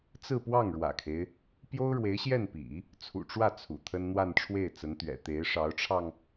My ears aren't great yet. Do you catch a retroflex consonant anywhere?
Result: yes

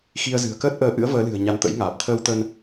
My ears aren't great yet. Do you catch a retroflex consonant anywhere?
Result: no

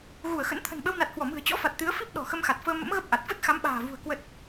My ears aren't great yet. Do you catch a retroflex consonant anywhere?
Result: no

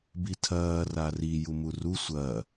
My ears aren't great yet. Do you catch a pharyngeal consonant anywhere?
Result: no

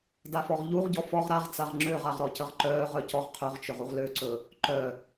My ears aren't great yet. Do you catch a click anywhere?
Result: yes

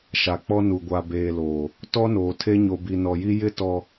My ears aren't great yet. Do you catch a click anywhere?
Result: no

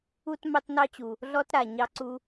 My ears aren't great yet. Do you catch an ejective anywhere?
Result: no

